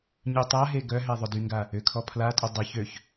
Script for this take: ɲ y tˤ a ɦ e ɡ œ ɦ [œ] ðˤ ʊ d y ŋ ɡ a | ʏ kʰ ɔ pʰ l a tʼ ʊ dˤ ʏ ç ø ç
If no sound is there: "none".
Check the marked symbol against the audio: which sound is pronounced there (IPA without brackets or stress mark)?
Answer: ɛ